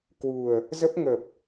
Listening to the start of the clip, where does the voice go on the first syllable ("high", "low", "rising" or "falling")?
low